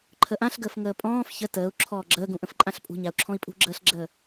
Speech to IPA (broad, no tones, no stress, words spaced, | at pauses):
ǃʰəʔãɬɡəːf ŋəːpʼɔ̃ːf çə təːu̯ ǁʰɔːɡ͡ǁəːɡũʔə̃f ǃʼãɬpʼṳɲau̯ ǁʰɔ̃i̯pʼṳɡ͡ǁəːɬɡ͡ǁəː